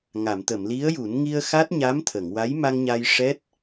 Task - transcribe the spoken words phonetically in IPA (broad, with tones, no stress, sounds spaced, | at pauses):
ŋ a˨˩˨ m t̪ ə˨˩˨ m l i˧˥ ə̯ j u˨˩˦ n ŋ i˧ ə̯ x a˦˥ t̚ ɲ a˧˥ m t̪ʰ ə˨˩˨ ŋ w a˧˥ j m a˧ ŋ ɲ a˧ j ʂ ɛ˦˥ t̚